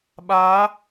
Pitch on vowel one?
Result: rising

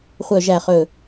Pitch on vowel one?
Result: low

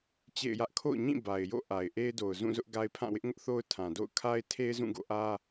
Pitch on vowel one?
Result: falling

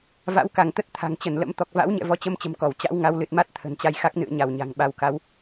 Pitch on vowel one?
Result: rising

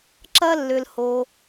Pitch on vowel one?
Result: high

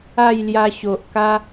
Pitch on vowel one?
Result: falling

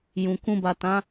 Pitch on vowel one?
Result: low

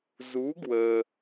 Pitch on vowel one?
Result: rising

